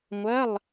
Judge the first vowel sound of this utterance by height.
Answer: low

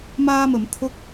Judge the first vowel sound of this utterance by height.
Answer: low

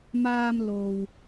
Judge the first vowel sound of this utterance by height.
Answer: low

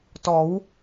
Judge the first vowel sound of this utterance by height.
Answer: mid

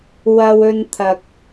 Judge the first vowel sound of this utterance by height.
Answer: low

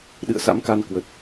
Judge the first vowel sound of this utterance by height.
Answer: high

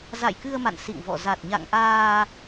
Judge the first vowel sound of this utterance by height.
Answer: low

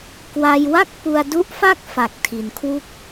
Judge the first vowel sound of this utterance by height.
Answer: low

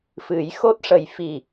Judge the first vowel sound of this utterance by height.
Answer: high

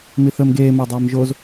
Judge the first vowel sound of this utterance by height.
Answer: high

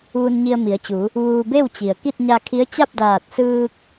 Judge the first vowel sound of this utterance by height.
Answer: high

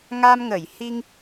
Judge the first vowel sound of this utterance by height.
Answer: low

